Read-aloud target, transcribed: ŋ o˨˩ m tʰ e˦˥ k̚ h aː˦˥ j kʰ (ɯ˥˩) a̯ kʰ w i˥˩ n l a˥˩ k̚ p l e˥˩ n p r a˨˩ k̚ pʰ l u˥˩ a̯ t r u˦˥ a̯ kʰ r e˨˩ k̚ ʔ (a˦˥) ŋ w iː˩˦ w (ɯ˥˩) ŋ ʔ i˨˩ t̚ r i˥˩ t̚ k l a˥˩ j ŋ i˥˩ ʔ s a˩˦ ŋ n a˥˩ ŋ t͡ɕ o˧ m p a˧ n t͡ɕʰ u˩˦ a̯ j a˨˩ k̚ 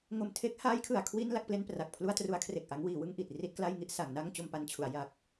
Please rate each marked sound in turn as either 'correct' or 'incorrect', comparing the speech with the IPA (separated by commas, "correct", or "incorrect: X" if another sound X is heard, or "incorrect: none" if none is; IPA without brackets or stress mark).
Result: incorrect: ɯ˧, correct, correct